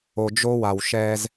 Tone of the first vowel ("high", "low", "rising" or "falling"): low